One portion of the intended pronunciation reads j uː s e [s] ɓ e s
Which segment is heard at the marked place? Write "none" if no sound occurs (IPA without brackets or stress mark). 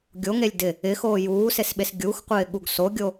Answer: s